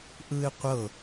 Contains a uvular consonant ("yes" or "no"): yes